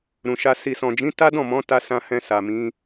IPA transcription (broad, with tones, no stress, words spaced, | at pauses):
ɾũ˨ʃa˧ si˨sɔ̃˨d͡ʒĩ˨˦ ta˦dɔ̃˦˨mɔ̃˨˦ ta˧ sã˧hɛ̃˧ sa˨mĩ˨˦